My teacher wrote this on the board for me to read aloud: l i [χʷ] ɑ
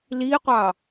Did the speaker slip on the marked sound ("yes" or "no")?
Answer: yes